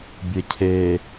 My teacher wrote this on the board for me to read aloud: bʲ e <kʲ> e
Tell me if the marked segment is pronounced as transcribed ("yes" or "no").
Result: no